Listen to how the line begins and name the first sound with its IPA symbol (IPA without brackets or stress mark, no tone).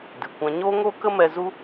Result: d